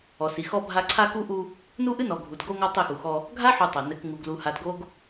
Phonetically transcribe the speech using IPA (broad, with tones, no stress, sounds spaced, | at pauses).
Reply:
ɔ˨ s i˨ x ɔ˦ bʱ a˦ ǀʰ a˦ k u˦ ʔ u˦ | n u˦ ʔ ɨ˦ n ɔ˨ ɡʱ u˨ d ɡ o˦ ŋ ɔ˦ tˤ i˦˨ x u˨ x ɔ˦ | ɡʱ a˦ ħ u˨ tˤ ɘ˨ n ɘ˨ k ŋ u˨ ɡ l u˨ h a˨ d ɡ o˨ ɡ